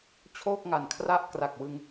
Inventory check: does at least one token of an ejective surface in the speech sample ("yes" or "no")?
no